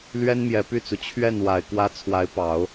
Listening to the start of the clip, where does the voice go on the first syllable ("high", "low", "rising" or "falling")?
high